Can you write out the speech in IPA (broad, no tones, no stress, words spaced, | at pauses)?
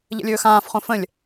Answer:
ʎə̰lʲɵːxãːfχõ fə̃lʲ